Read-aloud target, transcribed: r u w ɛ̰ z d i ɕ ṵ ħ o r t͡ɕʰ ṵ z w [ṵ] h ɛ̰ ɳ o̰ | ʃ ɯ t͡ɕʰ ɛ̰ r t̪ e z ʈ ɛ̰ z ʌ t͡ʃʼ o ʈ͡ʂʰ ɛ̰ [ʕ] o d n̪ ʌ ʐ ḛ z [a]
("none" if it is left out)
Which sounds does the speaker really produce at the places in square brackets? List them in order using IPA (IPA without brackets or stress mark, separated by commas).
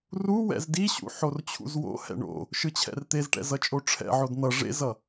o̰, ʕ, ʌ